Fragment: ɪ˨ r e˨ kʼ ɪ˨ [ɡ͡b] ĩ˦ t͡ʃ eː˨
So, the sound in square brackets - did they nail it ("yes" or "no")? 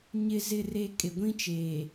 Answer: no